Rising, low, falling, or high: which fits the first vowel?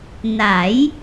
rising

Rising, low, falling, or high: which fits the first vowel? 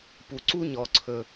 low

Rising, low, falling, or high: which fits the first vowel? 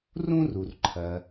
high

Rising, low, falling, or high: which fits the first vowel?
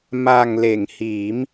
low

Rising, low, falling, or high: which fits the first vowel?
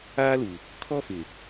high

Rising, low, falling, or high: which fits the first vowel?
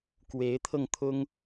rising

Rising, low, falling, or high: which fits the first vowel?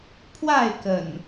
falling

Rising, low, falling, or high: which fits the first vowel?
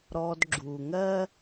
low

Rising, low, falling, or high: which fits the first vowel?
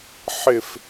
falling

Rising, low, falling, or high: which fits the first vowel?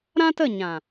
high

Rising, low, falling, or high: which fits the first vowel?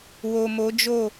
low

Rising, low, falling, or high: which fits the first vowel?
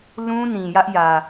high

